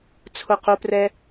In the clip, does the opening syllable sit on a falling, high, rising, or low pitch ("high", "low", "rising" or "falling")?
falling